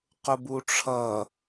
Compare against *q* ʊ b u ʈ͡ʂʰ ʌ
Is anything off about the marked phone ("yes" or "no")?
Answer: no